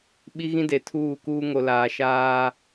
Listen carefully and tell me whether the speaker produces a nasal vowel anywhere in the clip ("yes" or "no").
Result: yes